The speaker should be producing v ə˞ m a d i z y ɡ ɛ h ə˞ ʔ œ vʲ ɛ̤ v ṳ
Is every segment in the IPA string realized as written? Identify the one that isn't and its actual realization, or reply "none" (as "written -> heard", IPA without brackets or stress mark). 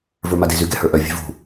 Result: none